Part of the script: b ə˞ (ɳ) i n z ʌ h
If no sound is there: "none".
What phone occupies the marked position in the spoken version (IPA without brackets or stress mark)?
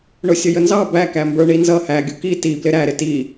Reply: ɳ